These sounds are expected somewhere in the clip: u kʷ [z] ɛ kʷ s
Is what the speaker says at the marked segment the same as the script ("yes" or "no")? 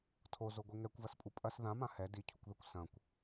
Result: no